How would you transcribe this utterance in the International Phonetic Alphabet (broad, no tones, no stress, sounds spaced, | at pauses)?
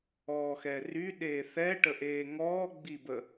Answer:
ɔː x ɛ r y ɗ eː θ ɛ ʈ ə ʔ eː ŋ ɔː ɡ͡b i b ə